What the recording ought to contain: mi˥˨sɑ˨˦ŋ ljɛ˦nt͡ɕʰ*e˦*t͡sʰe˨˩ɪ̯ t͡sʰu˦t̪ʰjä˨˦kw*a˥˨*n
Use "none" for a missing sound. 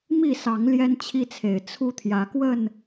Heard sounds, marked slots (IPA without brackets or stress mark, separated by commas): i˦, ə˥˨